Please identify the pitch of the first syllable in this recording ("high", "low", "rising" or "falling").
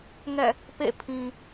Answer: falling